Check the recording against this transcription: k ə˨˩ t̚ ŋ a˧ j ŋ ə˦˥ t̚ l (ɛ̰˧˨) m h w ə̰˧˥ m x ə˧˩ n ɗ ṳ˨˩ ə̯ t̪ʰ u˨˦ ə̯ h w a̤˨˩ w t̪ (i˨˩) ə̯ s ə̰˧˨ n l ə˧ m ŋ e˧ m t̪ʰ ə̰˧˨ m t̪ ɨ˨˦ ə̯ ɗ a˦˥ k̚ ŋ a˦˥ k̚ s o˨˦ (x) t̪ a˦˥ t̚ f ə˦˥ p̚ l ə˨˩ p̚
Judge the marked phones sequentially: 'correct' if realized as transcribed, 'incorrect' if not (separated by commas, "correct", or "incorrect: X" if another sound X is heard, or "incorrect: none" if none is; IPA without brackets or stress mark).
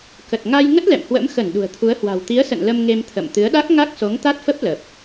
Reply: correct, incorrect: i˨˦, incorrect: ŋ